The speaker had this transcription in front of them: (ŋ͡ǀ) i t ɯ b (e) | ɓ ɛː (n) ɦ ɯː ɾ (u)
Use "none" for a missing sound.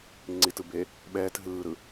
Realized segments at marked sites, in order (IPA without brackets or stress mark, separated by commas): ŋ͡ǀ, e, t, ɯ